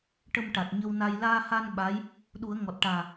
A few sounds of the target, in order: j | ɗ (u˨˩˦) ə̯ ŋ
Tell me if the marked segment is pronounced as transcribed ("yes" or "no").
yes